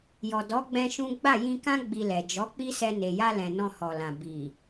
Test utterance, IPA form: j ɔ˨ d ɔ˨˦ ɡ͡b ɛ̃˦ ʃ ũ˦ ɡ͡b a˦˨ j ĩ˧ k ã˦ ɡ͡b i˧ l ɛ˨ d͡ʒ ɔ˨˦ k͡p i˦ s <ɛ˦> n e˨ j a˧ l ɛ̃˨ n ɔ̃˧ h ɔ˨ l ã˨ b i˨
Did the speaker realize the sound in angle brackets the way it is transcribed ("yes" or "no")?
no